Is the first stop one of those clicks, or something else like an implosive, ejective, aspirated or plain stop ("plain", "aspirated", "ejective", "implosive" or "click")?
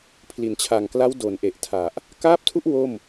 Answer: aspirated